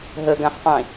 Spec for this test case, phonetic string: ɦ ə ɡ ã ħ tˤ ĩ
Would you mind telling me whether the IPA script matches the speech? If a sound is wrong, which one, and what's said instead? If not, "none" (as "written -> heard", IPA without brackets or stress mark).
none